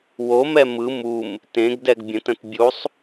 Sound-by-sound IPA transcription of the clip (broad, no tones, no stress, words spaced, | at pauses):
womɛ mɯ mum | tẽɡdɛɡ bʲə̃tə̃t bʲusˤ